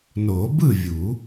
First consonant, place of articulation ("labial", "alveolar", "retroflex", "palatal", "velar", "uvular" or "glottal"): alveolar